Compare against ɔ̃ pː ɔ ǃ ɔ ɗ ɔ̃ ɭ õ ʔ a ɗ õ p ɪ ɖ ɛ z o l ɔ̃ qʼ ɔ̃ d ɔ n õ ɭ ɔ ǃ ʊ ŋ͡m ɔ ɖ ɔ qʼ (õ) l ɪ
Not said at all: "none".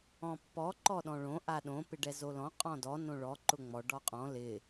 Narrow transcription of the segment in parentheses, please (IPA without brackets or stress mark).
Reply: ɔ̃